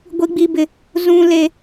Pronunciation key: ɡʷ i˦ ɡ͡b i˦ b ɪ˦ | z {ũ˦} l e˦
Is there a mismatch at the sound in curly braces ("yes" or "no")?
no